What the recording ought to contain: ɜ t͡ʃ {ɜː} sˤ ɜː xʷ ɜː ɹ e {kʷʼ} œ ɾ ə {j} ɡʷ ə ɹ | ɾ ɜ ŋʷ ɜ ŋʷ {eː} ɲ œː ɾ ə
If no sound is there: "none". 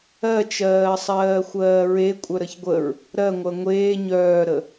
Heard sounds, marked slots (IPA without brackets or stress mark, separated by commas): ɜː, kʷʼ, ç, eː